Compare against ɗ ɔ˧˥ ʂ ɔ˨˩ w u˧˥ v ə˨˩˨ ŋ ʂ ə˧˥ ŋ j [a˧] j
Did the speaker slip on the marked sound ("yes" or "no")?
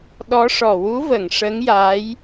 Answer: yes